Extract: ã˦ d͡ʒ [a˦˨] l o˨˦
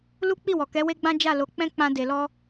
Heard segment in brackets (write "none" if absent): a˦˨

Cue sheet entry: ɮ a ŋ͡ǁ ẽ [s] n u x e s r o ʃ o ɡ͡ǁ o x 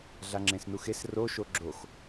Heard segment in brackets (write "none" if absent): s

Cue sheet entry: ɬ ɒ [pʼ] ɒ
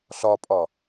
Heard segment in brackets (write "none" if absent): pʼ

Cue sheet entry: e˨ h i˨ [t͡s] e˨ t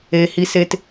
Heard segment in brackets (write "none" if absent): s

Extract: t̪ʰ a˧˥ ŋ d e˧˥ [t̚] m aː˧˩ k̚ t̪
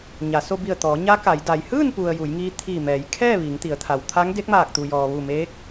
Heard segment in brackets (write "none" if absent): k̚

